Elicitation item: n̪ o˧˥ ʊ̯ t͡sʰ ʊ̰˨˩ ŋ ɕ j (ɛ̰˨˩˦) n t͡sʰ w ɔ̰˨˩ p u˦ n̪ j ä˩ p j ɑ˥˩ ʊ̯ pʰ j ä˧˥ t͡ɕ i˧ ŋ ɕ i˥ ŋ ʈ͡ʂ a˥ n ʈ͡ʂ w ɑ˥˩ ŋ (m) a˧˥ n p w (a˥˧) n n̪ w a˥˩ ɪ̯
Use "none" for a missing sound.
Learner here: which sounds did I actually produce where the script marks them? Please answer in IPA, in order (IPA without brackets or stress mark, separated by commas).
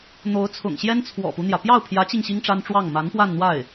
ɛ˥, m, a˥˧